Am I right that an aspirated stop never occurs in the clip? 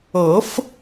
yes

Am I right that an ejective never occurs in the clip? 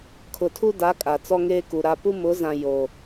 no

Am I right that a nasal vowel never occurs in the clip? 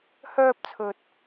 yes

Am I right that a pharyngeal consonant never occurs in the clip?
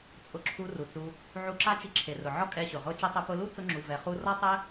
no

